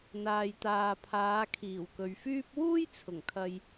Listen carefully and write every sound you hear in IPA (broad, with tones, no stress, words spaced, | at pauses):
n̪aː˨jt̪aː˨pʰaː˨˧kʰiː˨˩w kɵ˨ɥfyː˥p̚ wuː˥jt͡sʰʊ˨˩ŋkʰɐ˨j